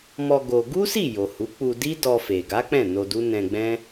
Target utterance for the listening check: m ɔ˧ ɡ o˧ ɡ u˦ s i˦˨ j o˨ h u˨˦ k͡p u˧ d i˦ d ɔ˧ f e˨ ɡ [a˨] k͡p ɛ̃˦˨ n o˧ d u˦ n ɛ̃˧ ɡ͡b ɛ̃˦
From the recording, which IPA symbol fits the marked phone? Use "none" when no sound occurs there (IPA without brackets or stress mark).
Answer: a˨˦